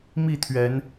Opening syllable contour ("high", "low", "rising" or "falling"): falling